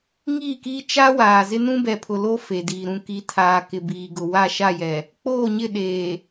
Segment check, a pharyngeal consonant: absent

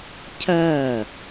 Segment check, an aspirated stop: present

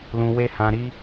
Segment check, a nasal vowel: present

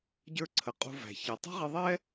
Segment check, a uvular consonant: present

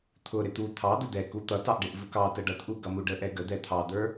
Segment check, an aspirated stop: present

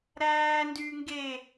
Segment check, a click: absent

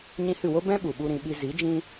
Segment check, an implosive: present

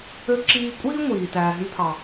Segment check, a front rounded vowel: present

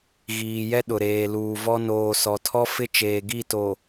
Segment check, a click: absent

